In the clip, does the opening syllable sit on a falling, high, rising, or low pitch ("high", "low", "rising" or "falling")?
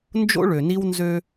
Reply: high